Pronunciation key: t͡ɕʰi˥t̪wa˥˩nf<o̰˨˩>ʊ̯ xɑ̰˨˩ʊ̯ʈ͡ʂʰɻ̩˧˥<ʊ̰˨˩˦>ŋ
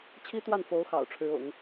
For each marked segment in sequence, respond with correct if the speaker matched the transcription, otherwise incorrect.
incorrect, correct

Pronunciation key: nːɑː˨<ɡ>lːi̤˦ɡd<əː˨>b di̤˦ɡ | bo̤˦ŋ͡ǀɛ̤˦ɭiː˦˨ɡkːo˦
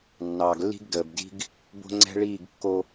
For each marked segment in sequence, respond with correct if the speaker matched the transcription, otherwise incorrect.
correct, correct

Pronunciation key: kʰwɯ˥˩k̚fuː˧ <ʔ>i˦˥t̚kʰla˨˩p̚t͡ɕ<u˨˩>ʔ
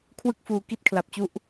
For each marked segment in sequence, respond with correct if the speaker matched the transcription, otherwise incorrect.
incorrect, incorrect

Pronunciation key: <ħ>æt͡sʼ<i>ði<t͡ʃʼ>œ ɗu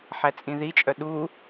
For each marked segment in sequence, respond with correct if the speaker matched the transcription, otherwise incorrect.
correct, incorrect, correct

